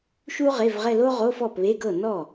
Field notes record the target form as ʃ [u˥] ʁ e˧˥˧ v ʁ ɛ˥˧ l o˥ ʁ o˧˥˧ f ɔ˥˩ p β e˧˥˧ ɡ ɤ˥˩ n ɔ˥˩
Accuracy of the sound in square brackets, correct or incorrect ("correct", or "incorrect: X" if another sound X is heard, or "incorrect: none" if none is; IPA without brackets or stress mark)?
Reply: correct